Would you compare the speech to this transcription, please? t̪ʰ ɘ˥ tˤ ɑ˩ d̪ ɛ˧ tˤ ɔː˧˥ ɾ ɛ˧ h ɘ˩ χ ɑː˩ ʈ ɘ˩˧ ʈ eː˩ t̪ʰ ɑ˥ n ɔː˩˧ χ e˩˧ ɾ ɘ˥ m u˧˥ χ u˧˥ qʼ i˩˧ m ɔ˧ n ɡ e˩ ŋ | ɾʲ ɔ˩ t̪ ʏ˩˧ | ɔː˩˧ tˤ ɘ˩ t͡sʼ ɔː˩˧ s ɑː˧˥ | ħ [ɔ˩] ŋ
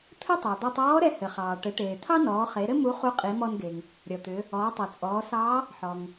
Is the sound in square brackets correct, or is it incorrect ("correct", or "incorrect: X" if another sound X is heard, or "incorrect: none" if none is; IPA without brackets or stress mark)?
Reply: correct